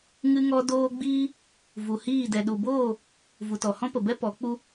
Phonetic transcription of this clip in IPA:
ŋ ɨ˦ ŋ ɔ˦ d oː˦ ɡ͡b iː˦ | v u˨ h iː˦˨ d ɛ˨ ɗ u˨ b oː˦˨ | v u˨ t ɔ˨ h ɔ̃˦ p ə˨ b ɛ˦ p ɔ˨˦ k͡p u˧

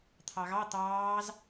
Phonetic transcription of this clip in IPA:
t̪ʰ ɑ ɣ ɑ t̪ ɑː z

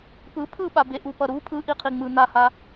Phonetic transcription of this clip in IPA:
p ɯ pʰ ɯ ɓ a b e ʔ u p ʌ ɾ u pʰ ɯ ʔ i qʰ i ŋ͡m ɯ n̪ a h a

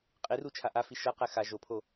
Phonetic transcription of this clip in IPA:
qʼ i r u t͡ʃʰ a ʔ a f i ʃ ɤ q ɛ x a ʒ o pʰ o

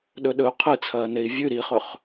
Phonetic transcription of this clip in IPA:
ɗ ɵ ɗ ɵ u̯ qʰ ɨ t͡sʰ ɐː n e i̯ vʲ ʉ ɾ i χ ɵ χ

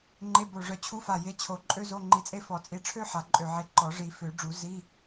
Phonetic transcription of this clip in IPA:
ŋ͡ǃ e˧˥˧ b o˧˩ ʐ œ˧˩ t͡ɕʰ u˧˥˧ f a˧˩ j e˧˥˧ t͡ɕʰ o˧˩ ǃʼ ø˥ z o˧˥˧ ŋ͡ǃ i˧˩ t͡sʼ e˥ f ɔ˨˩˦ t͡sʼ i˧˩ ʈ͡ʂʰ ø˥ ħ a˨˩˦ ǃʼ ø˧˩ ʕ e˧˩ ǃ ɔ˨˩˦ ʐ i˨˩˦ f ø˨˩˦ ɖ͡ʐ u˨˩˦ z i˧˥˧

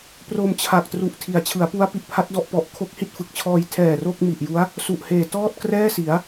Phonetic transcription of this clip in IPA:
p r o˧ m t͡ɕʰ a˨˩ k̚ t r u˦˥ ʔ tʰ i˨˩ a̯ t͡ɕʰ ɯ˩˦ a̯ p u˦˥ a̯ p i˨˩ ʔ pʰ a˦˥ t̚ d ɔ˥˩ ʔ p ɔ˦˥ ʔ kʰ o˦˥ k̚ h i˥˩ t̚ f ɯ˨˩ k̚ t͡ɕʰ ɔː˧ j tʰ ɛː˨˩ r o˥˩ k̚ m i˨˩ ʔ j u˦˥ a̯ | s u˨˩ ʔ h eː˨˩ t ɔː˥˩ t̚ k r ɛː˥˩ s i˩˦ a̯

